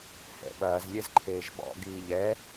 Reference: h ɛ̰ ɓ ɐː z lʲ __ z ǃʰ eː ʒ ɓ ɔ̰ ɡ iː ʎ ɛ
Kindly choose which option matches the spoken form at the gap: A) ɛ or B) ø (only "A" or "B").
A